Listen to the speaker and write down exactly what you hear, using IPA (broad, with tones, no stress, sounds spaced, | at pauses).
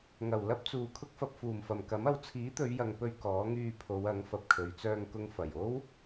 ŋ ɐ˨˩ w l ɐ˥ p̚ t͡s uː˨ kʰ ʊ˥ k̚ f ɐ˧ p̚ f uː˨˩ m f ɐ˨˩ m k ɐ˨˥ m ɐ˨˧ w t͡sʰ iː˨˥ t̪ ɵ˨˧ ɥ j ɐ˨ ŋ p ɵ˧ ɥ k ɔː˨˥ ŋ yː˧ pʰ o˨˧ w ɐ˨˥ ŋ f ɐ˨ p̚ kʰ ɵ˨˧ ɥ t͡s œː˧ ŋ k ʊ˨ ŋ f ɐ˨˩ j o˥ w